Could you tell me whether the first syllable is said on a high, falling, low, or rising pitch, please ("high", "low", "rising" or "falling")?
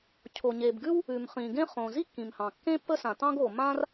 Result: low